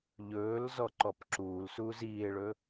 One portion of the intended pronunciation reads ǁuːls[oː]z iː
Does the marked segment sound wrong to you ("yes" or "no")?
yes